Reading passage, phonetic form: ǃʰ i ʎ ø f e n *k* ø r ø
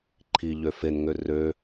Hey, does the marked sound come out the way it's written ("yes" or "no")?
no